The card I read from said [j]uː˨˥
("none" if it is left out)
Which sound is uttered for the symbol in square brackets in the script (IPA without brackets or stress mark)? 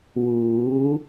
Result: w